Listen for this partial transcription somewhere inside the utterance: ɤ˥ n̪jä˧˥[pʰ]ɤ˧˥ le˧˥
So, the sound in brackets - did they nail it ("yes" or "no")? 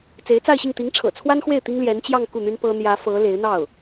no